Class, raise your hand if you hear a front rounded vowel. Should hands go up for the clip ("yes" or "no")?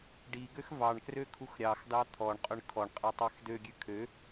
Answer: yes